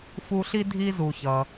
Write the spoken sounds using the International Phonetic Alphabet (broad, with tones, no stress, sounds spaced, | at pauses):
f u˦ ɬ i˥ dʱ i˥ z u˨ ç ʌ˨